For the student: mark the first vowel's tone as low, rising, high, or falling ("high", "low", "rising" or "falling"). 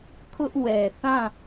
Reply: high